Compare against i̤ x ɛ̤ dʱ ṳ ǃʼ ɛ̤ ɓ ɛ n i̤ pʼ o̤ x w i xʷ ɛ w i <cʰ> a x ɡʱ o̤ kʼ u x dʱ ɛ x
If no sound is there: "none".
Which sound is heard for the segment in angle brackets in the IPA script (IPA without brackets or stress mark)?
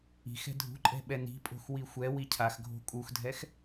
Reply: cʰ